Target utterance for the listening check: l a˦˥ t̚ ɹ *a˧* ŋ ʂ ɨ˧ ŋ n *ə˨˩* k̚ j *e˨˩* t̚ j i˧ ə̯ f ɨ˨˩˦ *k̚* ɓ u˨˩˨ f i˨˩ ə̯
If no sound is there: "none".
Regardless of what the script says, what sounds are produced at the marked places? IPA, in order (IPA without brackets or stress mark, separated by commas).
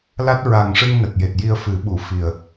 a˨˩, ə˨˩, e˨˩, none